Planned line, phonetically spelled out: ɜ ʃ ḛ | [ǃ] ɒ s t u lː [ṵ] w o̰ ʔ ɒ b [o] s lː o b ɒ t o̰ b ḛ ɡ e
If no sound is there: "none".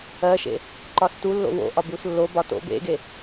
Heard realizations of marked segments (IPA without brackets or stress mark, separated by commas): ǃ, o̰, u